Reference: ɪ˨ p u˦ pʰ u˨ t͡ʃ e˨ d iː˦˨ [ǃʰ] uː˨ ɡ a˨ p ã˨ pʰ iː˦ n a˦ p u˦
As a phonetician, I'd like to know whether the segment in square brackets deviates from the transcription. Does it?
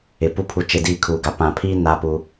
yes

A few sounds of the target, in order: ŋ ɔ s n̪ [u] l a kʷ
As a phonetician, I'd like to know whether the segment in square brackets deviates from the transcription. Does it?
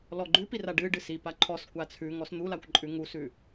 no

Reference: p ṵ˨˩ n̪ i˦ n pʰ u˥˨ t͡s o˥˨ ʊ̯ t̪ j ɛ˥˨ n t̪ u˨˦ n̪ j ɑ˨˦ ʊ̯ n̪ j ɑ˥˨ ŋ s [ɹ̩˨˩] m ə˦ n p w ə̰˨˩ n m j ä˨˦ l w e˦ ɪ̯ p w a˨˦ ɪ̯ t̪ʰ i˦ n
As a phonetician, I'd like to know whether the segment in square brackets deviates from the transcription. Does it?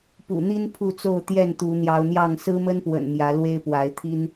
yes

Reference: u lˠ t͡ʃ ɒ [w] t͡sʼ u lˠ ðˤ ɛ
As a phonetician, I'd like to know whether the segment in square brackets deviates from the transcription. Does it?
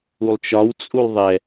no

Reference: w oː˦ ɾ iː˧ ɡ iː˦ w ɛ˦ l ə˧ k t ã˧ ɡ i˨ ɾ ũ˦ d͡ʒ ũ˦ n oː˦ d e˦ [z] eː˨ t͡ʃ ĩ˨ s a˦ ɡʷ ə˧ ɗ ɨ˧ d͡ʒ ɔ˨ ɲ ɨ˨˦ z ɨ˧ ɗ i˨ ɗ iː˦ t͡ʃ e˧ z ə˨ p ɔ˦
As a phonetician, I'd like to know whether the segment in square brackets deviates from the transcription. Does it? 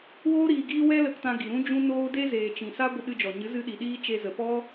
no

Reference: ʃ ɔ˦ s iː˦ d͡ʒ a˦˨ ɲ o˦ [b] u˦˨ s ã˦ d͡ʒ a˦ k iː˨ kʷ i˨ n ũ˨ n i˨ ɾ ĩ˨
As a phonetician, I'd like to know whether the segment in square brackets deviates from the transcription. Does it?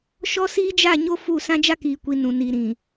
yes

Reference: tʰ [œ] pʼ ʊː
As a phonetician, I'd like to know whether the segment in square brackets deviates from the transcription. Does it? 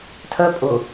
no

